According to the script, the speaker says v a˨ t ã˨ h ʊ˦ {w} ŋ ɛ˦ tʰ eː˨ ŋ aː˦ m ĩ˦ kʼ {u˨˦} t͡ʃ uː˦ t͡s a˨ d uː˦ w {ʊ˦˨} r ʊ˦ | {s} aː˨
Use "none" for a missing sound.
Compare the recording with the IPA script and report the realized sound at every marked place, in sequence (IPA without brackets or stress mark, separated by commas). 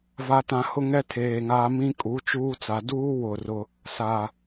none, u˨˦, ʊ˦˨, s